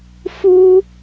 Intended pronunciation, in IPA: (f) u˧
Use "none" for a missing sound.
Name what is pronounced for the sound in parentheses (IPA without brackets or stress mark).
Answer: f